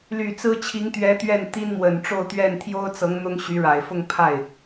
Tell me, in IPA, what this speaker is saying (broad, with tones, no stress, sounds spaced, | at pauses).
l y˨˩ t͡s ɹ̩˥ t͡ɕʰ i˧˥ ŋ t̪ ɥ ɛ˧˥ t̪ ɥ ɛ˥˩ n t̪ i˥ n m w ə˨˩ n ʈ͡ʂ o˥˧ ʊ̯ t̪ ɥ ɛ˥˩ n t̪ʰ j o˥ ʊ̯ t͡s ɤ˧˥ ŋ n̪ ʊ˥ ŋ ɕ y˧˥ ɻ a˨˩ ɪ̯ f ʊ˥˧ ŋ pʰ a˥˩ ɪ̯